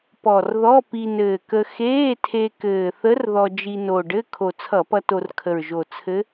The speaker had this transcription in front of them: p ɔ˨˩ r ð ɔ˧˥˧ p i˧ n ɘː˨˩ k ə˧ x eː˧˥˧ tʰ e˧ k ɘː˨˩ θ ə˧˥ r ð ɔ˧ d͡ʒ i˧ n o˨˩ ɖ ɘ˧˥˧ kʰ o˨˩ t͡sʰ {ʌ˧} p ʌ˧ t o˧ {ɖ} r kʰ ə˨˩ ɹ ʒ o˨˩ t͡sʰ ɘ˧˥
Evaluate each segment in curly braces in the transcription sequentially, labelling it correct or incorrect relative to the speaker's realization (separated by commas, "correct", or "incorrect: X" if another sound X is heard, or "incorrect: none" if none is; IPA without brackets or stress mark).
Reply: incorrect: ʌ˧˩˧, incorrect: none